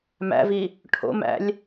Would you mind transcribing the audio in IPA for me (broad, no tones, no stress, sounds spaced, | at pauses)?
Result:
m æ̰ v i | ʈʰ o̰ m æ̰ lʲ